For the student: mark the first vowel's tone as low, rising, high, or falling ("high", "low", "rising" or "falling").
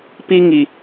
high